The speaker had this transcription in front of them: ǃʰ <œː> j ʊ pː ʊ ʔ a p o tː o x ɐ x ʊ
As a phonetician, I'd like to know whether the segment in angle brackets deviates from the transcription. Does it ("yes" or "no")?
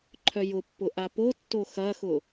yes